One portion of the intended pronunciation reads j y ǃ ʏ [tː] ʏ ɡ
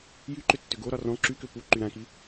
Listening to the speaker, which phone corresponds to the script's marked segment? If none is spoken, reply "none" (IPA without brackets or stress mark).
tː